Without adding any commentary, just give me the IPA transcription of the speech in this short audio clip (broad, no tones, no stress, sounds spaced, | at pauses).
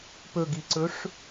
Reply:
p ɵ ɡ i ǀ ɵ ʂ